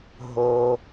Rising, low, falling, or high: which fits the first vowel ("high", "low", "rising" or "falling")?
high